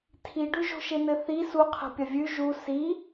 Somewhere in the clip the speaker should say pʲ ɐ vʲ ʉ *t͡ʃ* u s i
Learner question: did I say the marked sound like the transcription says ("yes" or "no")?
no